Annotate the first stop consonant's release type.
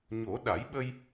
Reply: implosive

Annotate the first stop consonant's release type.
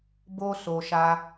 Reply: plain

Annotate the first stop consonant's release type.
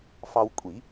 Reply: ejective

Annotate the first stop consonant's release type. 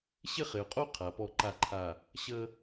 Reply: ejective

